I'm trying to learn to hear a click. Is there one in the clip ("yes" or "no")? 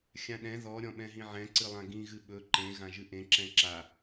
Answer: yes